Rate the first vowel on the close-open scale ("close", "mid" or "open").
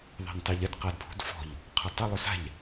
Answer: open